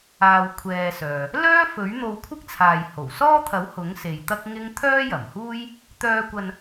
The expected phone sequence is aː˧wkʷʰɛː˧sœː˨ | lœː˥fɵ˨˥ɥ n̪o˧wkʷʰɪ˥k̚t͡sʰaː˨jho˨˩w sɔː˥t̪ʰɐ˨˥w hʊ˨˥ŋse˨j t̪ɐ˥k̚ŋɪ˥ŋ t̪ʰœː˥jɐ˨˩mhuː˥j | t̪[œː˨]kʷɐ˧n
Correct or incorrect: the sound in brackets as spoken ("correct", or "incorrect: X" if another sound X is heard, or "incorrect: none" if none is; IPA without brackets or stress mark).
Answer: incorrect: œː˧